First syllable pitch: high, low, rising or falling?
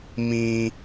high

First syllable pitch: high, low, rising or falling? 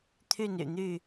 falling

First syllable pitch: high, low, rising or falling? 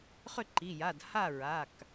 falling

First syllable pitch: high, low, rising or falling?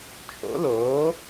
rising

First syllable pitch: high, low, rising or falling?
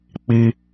low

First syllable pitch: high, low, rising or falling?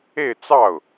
falling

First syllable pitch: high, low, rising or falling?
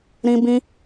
high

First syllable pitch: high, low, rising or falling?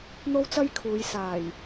high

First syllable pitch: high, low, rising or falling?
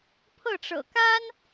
falling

